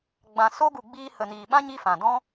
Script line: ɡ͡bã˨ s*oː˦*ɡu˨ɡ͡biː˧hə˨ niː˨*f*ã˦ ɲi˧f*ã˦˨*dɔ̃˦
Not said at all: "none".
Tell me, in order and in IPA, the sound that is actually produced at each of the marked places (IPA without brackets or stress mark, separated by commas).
o˦, ɓ, ã˨